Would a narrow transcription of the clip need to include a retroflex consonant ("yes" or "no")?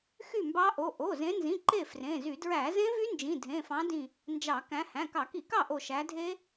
no